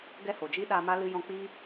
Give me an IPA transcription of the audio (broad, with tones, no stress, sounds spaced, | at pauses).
ɡ ɛ˦ h o˨ d͡ʒ i˦ ɗ a˧ m a˦ l ɨ˧ j ɔ̃˧ k͡p i˦